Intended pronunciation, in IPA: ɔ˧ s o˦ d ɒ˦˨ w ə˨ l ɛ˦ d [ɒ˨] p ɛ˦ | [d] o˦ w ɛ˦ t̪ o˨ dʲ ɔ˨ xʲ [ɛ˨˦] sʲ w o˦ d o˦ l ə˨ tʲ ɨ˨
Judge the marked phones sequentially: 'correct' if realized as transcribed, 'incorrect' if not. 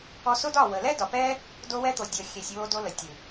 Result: correct, correct, incorrect: ɛ˨

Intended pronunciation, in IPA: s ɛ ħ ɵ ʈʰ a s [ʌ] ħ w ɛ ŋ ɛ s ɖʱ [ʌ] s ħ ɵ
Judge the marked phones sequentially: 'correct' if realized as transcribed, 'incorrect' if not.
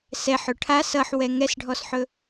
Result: correct, incorrect: ɔ

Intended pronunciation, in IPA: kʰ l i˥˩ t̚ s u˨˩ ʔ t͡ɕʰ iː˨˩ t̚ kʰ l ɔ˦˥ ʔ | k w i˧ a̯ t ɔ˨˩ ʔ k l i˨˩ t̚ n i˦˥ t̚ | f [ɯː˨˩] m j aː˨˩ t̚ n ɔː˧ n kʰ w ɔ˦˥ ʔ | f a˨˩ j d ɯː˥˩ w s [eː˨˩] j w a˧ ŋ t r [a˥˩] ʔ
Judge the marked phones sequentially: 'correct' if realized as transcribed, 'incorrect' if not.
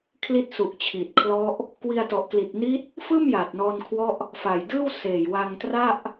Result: incorrect: ɯː˥˩, correct, correct

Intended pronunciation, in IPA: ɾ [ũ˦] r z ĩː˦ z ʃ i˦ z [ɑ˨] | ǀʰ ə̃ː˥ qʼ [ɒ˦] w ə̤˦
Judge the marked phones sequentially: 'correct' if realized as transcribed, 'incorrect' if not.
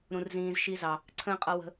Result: correct, correct, incorrect: ʌ˦

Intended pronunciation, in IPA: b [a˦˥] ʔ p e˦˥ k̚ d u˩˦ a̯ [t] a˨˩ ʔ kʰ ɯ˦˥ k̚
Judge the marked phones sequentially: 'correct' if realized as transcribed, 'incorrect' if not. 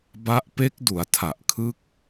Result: correct, incorrect: tʰ

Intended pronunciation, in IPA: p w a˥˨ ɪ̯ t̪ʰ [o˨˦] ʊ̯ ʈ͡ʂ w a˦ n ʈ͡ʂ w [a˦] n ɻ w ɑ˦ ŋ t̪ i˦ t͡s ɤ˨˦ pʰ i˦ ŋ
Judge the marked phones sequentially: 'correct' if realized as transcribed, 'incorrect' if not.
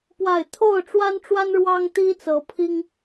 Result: incorrect: o˥˨, correct

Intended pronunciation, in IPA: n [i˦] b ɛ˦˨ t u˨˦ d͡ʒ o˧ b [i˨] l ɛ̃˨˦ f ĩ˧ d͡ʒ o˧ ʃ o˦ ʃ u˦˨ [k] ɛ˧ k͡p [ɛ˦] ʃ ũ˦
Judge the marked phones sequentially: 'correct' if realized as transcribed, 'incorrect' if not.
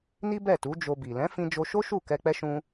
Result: correct, correct, correct, correct

